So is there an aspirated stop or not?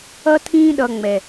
yes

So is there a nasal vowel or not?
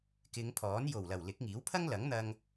no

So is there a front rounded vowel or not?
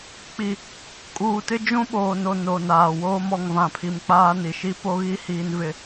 no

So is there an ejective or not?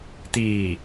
no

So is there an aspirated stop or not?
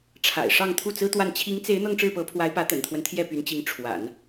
yes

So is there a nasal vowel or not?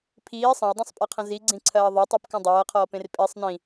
yes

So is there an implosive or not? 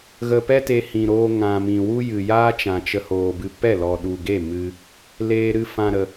yes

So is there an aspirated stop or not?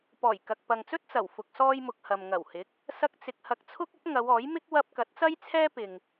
yes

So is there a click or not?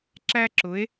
yes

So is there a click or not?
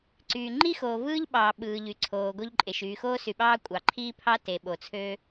yes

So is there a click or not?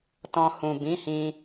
no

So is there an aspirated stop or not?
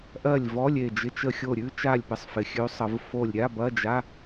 no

